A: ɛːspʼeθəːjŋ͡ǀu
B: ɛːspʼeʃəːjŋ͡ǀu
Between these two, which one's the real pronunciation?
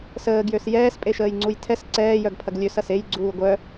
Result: B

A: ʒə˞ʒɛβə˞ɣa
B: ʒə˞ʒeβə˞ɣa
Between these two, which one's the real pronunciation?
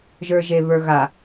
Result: B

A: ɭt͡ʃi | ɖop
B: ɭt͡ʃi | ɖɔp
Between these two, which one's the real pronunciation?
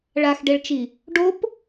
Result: A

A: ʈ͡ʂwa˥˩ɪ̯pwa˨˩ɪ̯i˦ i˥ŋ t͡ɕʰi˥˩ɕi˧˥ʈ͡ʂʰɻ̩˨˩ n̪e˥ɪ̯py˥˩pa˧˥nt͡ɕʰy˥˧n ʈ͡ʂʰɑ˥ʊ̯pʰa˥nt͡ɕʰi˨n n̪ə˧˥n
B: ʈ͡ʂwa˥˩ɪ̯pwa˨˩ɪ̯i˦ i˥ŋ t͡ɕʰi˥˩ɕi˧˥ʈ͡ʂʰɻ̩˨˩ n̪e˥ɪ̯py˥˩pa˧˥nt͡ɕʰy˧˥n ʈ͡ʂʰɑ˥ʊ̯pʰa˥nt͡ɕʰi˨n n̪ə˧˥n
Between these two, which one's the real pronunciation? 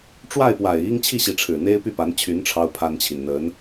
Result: B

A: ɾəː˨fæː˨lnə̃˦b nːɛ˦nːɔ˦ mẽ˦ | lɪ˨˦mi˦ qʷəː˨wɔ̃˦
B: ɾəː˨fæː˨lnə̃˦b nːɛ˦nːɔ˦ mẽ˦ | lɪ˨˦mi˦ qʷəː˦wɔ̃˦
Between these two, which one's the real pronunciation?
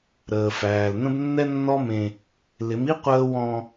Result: B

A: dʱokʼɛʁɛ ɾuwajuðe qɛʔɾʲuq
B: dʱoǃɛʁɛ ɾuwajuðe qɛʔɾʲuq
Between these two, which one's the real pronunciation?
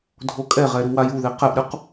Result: A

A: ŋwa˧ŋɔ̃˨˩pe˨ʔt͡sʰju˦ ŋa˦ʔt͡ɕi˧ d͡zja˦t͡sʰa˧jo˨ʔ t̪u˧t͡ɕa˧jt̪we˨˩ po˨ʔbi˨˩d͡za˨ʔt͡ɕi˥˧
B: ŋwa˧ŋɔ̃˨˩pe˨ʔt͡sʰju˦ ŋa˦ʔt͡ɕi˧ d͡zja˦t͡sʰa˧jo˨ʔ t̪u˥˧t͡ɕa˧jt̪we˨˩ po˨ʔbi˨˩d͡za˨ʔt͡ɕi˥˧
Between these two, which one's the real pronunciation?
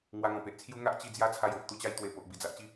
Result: A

